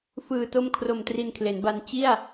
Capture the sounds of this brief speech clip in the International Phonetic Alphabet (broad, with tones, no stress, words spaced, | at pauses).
fɯː˨˩to˦˥mkʰro˨˩m tri˧nkʰle˩˦nba˧n t͡ɕi˥˩a̯